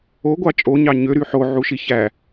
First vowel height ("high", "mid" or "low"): mid